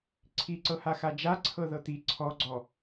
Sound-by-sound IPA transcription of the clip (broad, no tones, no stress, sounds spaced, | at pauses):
ǀʰ i ǀ ɤ h a x a d͡ʒ a ǀʰ ɤ ð ɤ t̪ i ǀʰ ɔ ɡ͡ǀ ɔ